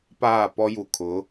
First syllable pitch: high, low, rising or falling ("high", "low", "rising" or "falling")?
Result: falling